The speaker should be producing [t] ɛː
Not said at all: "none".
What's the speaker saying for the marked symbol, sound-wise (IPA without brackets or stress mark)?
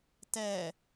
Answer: t